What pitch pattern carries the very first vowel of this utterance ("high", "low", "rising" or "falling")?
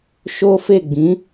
high